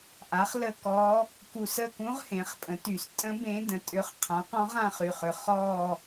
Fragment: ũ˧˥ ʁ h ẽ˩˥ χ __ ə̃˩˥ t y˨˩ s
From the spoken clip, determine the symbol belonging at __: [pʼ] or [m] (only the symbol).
pʼ